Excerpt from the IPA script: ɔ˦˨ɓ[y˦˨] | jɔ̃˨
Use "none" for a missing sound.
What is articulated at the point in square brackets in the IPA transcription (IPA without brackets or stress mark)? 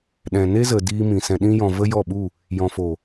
u˦˨